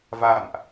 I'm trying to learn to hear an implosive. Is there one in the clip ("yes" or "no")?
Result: no